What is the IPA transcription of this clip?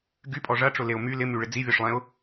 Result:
ɡ y pʼ ɔ ʐ ɐ ʈ͡ʂ ʊ l e ʊ̯ m y l ɪ m y ɭ ɪ d͡z i vʲ ɔ ʂ lˠ ɛ̃ ʊ̯

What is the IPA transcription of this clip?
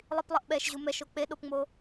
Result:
lˠ i p lˠ ʌ ʔ ɓ ɛ ʃ ʑ u m ɛ ʃ o k͡p e ɗ o p ŋ͡m o

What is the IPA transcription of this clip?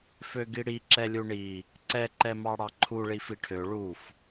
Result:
f ø ɡ i ɽ i ǁ ɛ lʲ u ɳ i | ǀ ɛ ǃ ɛ m ɑ ɽ ɑ ǃʰ u ɭ i f i ʈʰ ø ɭ u f

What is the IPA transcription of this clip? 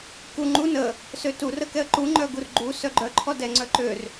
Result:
k u ŋ͡ǃ u n ə | s ø t u r ə k ɛ ə̯ ǃ u ŋ͡ǃ œ ɡ u r ɡ͡ǃ u s œ ɡ͡ǃ œ ǃʰ ɔ d ɛ ŋ͡ǀ œ ǃ ø r

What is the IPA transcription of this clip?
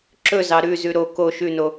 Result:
ǁ ɵ z ɑ ɾ ʉ z ʉ ɾ o k o ʃ ʉ n o

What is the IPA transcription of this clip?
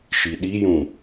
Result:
ʃ i ɗ i j ũ

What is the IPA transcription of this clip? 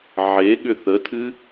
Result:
ʕ e ɠ ʏ θ ə tʰ ɨ

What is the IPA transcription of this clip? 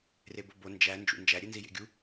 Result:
r e b o b o n d͡ʒ æ n d͡ʒ ṵ n d͡ʒ æ ɾʲ e n z i j ḛ ɡʲ u

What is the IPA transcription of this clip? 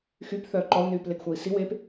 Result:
x y p θ œː ǃ ɔ u̯ n yː p l e ɡ xʷ a i̯ s i w eː p

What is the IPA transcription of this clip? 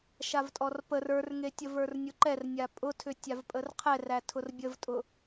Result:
ʃ a v tʼ ɔ r p ə r ə˞ r ŋ e tʲ ə v ə˞ r nʲ ʊ ǃ ɛ r nʲ a pʼ ʊ tʰ ʏ tʲ a v pʼ ə r qʰ ɛ r æ tʰ ʊ r bʲ ə v tʼ ʊ

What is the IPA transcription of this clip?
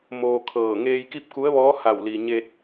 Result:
m oː˧ kʰ ɤː˧˩ ŋ eː˧ j k i˥˨ p̚ k u˧˥ ə̯ ʋ ɔː˧˥ h a˧˩ w l i˩ ɲ e˧ t̚

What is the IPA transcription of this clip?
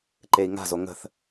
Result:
ǃ e i̯ ŋ a̤ z o ŋ ə̤ θ

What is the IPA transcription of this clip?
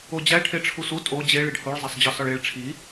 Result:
o d͡ʑ æ ʈʰ e ʈ͡ʂʰ u s u tʼ o d͡ʑ e ɭ i ɖ h o ɭ zˤ æ sˤ d͡ʑ ɒ s ɒ ɭ e ɭ ʈ͡ʂʰ i

